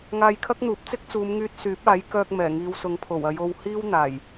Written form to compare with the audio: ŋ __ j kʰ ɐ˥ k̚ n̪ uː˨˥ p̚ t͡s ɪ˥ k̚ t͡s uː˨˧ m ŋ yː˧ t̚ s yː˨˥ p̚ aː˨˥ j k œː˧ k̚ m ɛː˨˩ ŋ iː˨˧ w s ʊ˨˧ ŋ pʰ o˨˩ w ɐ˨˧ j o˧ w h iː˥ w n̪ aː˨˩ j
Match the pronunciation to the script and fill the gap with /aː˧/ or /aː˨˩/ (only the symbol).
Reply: aː˧